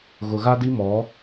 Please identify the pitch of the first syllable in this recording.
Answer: low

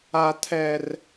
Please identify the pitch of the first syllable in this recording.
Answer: low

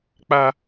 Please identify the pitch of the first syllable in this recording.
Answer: high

